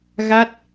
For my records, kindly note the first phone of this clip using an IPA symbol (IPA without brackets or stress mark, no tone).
ɣ